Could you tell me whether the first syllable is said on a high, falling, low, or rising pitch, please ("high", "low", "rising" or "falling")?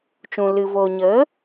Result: low